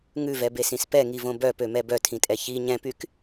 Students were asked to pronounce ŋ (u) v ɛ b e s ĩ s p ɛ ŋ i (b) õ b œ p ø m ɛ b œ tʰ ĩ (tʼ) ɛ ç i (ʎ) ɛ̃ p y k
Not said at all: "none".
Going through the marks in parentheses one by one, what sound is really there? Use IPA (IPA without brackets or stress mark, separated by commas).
ʉ, v, tʼ, ɲ